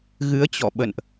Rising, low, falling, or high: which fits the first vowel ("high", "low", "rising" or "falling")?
rising